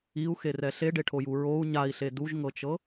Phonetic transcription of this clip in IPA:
iu̯xerɛ ɬeɖeʈʰoju ɹou̯ ɲai̯ɬe duʒŋɤt͡ʃɤ

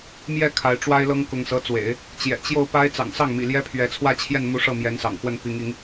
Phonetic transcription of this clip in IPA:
mjɛ˥˩ kʰa˧˥ɪ̯ʈ͡ʂwa˥ɪ̯ lɤ˥ŋkʊ˧˥ŋsɤ˧˥t͡swḛ˨˩˦ɪ̯ | t͡ɕjɛ̰˨˩ t͡ɕjo˥˩ʊ̯pa˥ɪ̯ t͡sɑ̰˨˩ŋsɑ˥˩ŋmḭ˨˩ ljɛ˥pʰɥɛ˧˥ t͡sʰwä˥˧t͡ɕʰjɛ˥˩nmu˧˥ ʂɤ˥˩ mjɛ˧˥nsɑ̰˨˩ŋxwə˥˩n pi˧˥ŋi˧˥ŋ

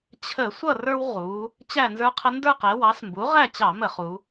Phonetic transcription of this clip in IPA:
t͡ɕʰə˧˩˧ sʷʌ˥˨rə˞˦wʁu˩˧ | t͡ɕæ˥˨nzə˞˦qʰə˦ ndə˞˥˨qɛ˩˧wɑ˩˥s mbu˩˥ ʁæ˥˨t͡ɕɑ˧˩˧mə˧˩˧ χu˩˧

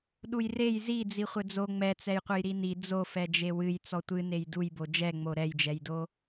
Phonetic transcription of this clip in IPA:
ɗujrej zi d͡ziχʷɘd͡zo ŋ͡mɛt͡sɛjqʷɘj ɾini d͡zofɛd͡ʒe wɨj t͡sɔtʷɨ nejdujbo d͡ʒɛŋ͡mo ɾɛjd͡ʒɛjdo

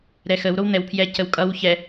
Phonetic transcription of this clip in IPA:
ɾɛxəw ɾown̪ɛwpʰjɛ cəwkʼʌw çɛ

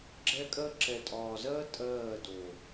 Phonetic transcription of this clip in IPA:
ɡ͡ǁɛ˦kʼɜ˦ ǁɛ˨tʼɒː˨zɜ˦ tʼɜː˦˨do˨

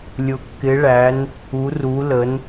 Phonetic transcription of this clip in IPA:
lʲʊ˩kːɪ˩˧ɭæ˩˧n | u˩˧ru˩˧lə˩˧n

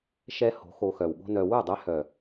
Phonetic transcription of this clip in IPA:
ʃɛ˦ho̤˨˦ xo˧xœ˨wɠo̤˦nœ˧ wu˦˨dˤɛ˧hœ˨

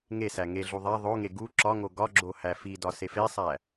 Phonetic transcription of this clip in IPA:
ŋesæ ŋeɮu ðˤæ ðˤoŋe ɡu ǁɒŋo ɡɒɡ͡ǁo hæfidɒ sefesˤæ

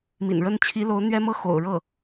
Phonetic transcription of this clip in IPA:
mḭ˨˩nɻə˥n t͡ɕʰi˧˥lo˧˥ʊ̯ n̪ɥɛ˥mɤ˥ xo̰˨˩ʊ̯ ɻɤ˥˩

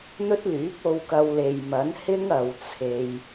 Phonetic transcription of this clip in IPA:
n̪ɵ˥t̚lyː˨˥p̚o˧wkɐ˧w le˨jmɐ˨˥nhɪ˥ŋ ɐ˨˧wt͡sʰe˧j

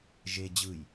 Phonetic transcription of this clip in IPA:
ʒe d͡ʑɯj

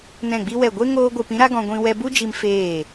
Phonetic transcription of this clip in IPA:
nɛ̃˦˨ɡ͡bi˦wɛ˦˨ ɡʷe˦ ŋoː˦ɡʷɨ˧p ĩ˦ɾa˦ɡɔ̃˧ɡʷĩ˧ wɛ˧bu˦d͡ʒi˧m feː˦˨

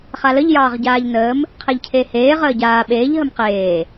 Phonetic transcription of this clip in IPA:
χaləʎ jɑːʁɟaːʎnəːm | qʰeʎcʰeːheː ʁəːɟaː ɓeːʎ ɦəmqeː

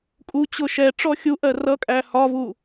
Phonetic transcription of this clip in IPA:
kʼut͡ɕʊ ʃɛ ʈ͡ʂɔxʲuʔɜ rʌkʼæ hɒvu

